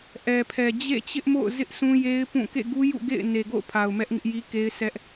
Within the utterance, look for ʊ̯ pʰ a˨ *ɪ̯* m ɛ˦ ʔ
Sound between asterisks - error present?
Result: yes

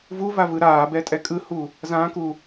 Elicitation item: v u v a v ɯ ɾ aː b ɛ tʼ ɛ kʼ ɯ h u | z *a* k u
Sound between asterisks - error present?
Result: yes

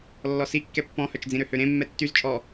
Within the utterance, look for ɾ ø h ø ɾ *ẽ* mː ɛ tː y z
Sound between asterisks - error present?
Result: no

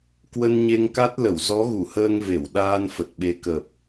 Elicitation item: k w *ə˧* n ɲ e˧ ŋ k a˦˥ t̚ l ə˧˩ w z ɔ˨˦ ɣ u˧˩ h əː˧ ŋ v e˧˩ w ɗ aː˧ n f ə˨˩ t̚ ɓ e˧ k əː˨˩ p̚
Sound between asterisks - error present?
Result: no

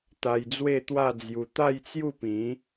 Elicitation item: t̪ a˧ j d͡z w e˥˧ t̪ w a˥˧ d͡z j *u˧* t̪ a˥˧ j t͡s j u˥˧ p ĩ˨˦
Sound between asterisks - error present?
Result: no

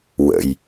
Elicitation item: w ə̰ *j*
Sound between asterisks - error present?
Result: no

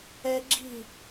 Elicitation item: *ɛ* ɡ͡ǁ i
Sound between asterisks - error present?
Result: no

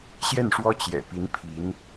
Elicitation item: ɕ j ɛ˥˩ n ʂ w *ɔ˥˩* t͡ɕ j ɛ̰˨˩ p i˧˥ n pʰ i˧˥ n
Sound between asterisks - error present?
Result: yes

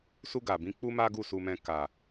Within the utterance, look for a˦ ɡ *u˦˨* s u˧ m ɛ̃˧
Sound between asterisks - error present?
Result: no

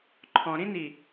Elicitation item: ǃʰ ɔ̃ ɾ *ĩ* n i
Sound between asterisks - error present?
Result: no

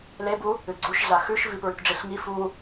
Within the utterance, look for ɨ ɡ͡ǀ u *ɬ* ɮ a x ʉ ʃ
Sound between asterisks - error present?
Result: yes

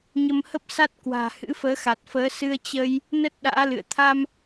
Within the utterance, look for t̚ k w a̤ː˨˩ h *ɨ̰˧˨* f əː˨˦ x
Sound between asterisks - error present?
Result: yes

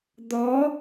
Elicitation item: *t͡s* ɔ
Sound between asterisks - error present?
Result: yes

